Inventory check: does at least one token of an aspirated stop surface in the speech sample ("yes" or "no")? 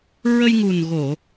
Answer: no